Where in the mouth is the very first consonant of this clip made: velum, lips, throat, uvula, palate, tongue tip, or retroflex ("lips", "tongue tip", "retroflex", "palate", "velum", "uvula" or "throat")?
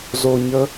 tongue tip